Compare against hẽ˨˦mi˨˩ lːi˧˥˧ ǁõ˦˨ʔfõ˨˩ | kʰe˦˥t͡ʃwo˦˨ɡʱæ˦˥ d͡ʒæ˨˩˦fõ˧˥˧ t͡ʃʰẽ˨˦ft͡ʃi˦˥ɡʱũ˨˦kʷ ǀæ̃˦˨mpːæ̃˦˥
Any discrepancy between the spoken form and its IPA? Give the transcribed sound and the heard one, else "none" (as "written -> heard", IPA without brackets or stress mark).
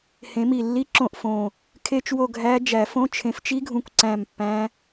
none